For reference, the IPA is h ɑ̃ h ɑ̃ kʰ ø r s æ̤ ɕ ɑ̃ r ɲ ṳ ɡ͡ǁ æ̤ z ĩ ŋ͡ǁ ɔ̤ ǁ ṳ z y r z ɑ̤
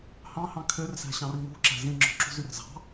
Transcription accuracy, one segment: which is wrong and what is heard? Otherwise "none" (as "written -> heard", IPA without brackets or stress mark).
ɡ͡ǁ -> ǁ